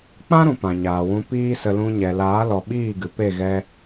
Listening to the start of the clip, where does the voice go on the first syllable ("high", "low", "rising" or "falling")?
high